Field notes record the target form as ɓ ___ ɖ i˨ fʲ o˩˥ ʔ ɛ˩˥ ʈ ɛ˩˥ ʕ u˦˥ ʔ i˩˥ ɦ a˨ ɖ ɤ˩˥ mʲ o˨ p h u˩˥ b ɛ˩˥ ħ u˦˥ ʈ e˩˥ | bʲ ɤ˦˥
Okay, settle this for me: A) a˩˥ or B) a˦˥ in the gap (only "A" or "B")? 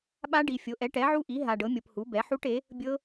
B